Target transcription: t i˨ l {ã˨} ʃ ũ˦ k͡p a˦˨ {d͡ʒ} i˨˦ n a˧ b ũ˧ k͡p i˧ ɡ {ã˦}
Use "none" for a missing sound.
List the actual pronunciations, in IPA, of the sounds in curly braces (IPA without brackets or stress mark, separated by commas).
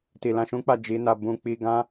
ã˧, d͡ʒ, ã˦